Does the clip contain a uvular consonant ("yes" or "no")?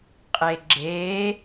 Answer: yes